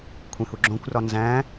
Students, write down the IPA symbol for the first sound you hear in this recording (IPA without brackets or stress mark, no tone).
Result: kʷʰ